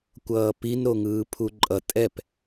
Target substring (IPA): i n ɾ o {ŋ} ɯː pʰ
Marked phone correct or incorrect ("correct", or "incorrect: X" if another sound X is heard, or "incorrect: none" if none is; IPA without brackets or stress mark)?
correct